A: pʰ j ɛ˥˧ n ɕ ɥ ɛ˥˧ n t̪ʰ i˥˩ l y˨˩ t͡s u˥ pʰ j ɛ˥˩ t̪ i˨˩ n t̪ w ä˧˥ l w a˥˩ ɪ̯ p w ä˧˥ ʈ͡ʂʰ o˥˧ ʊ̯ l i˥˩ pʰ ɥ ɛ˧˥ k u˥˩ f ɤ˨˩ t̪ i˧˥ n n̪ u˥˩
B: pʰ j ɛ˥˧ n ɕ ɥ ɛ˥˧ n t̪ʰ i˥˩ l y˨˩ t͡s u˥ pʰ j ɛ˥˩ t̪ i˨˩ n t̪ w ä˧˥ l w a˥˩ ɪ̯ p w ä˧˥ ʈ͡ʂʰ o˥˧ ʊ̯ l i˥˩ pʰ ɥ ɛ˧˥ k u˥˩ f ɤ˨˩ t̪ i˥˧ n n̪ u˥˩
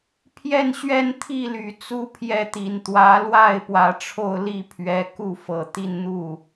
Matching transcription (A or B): B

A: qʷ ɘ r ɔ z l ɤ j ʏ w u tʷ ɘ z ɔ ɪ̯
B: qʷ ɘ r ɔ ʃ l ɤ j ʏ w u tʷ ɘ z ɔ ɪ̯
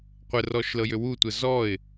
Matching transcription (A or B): B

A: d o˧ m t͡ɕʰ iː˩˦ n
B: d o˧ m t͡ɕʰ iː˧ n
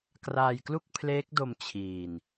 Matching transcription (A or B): B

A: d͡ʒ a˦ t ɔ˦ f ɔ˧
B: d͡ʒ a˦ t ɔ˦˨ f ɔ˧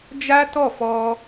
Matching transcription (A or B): B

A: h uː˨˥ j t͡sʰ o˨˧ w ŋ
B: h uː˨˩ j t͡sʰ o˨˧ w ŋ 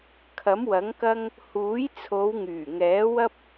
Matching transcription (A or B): A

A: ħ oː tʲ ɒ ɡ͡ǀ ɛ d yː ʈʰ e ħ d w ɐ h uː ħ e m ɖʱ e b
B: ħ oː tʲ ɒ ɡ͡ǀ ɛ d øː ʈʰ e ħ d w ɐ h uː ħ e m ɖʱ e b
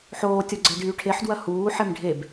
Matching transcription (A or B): A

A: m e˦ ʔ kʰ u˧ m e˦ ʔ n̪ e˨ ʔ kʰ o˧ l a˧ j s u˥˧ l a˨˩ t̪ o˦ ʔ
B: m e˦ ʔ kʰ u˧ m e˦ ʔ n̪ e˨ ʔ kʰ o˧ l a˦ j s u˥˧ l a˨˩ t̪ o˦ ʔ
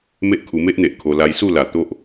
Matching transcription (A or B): A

